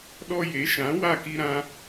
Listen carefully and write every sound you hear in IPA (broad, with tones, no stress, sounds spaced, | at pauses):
ɗ ɔ˧ j e˨˦ ʃ ã˨˦ w a˦˨ k i˧ ɾ ã˧